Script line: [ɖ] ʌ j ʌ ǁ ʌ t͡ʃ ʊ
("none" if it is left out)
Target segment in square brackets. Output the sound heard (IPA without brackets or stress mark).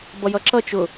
b